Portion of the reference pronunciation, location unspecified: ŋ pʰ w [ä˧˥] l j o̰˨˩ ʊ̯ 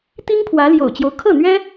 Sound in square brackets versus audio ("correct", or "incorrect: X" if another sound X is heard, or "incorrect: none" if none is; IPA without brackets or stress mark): correct